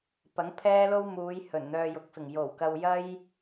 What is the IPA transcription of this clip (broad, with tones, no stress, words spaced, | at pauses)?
pɐ˨˥ŋpʰɛː˥lo˥wmuː˨˧j hɵ˨˩nn̪œː˧jʊ˨˥k̚fɪ˨˩ŋ jo˨˩wkɐ˧w jɐ˥j